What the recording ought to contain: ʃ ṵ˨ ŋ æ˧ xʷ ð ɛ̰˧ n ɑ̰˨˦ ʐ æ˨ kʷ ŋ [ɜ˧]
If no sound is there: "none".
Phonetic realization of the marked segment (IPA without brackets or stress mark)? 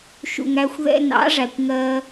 ɜ˧